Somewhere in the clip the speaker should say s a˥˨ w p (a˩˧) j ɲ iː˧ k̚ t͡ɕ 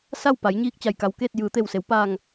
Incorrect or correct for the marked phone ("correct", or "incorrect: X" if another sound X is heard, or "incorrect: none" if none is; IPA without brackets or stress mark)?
correct